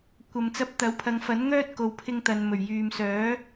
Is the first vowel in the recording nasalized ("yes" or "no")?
no